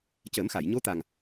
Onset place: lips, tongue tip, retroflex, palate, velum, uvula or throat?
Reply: palate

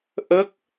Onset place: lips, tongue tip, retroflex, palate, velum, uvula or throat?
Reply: throat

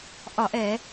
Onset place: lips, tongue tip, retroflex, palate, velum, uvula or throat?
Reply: throat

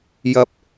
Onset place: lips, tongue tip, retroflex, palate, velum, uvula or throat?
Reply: palate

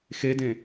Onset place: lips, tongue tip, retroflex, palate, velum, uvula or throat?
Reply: velum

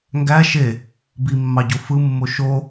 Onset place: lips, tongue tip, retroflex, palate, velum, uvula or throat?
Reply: velum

